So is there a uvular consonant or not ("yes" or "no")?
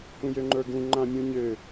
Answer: no